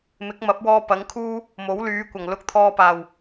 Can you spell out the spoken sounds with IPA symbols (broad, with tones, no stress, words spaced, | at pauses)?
mɪ˨˥k̚mɐ˨˥p̚wɔː˧ pɐ˨˥ŋkʰuː˥ | mo˨˥wlyː˨˧kʷɐ˨˩ŋ lʊ˧k̚t̪ʰɔː˧paː˨˩w